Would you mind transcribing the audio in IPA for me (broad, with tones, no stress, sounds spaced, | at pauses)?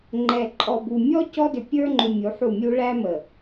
ŋ͡ǃ ɛ˨ ǃʼ ɔ˨ b u˨ mʲ ɔ˦ c ɔ˦ d ʏ˨ pʲ ə˞˦ ŋ͡ǃ ʏ˨ mʲ u˨˦ ħ u˦˨ mʲ u˦ ɭ æ˦ m ə˨